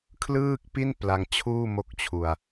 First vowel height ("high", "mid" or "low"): high